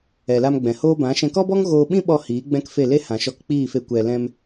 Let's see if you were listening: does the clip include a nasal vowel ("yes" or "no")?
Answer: yes